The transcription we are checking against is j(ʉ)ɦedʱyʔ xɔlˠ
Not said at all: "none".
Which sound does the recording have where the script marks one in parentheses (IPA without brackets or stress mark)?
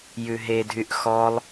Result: ʉ